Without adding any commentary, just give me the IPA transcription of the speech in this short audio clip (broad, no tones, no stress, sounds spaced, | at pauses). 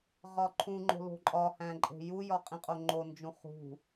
ʁ ɒ ǃʰ ũ ŋ͡ǃ o̤ l o̤ ǃʼ ɒ h æ̃ ǃʼ e̤ j u j ɒ qʼ ĩ qʼ o ŋ͡ǃ o n d͡ʒ ũ χ ṳ